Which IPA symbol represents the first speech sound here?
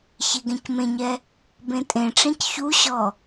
ç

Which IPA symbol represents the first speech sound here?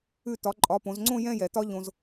ʉ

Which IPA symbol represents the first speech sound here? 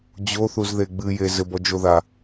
d͡ʑ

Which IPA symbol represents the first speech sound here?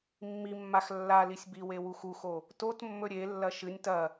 mː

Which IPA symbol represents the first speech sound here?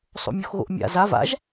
sˤ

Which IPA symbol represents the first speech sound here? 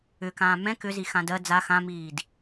ʏ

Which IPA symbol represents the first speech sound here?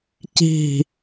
c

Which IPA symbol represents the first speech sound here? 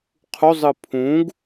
qʰ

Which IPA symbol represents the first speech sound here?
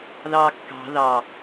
ð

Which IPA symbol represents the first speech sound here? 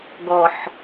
ɡ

